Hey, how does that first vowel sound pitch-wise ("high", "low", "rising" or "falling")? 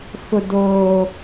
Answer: high